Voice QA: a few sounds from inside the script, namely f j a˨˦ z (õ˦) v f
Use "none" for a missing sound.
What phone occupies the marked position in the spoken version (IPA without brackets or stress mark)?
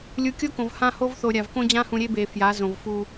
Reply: õ˨